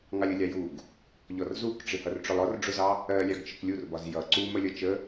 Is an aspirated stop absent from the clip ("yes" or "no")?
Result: yes